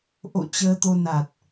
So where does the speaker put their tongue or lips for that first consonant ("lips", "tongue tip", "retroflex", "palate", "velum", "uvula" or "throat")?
throat